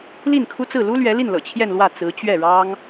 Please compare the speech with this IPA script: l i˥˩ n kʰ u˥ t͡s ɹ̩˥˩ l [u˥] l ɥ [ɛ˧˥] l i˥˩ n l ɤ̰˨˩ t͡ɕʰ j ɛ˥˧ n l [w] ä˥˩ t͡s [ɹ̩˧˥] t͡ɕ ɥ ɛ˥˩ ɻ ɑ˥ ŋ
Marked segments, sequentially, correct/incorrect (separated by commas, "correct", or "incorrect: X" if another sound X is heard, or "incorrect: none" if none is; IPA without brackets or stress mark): correct, correct, correct, correct